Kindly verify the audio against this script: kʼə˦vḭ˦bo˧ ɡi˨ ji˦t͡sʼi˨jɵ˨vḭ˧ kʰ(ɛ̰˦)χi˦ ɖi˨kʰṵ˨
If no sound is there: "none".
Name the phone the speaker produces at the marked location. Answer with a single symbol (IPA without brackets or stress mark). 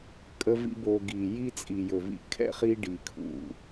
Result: ɛ̰˦